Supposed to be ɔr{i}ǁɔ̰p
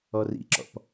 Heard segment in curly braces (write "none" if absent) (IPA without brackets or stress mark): ḭ